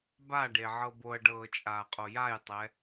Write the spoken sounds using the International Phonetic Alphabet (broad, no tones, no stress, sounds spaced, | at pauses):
b a ɖ e ʕ ɤ b o ɐ̯ ɖ ɤː t͡ʃʼ aː qʼ o j a j tˤ ɛ